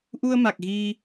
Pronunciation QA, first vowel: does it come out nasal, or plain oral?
oral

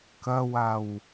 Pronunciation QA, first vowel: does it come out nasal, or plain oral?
oral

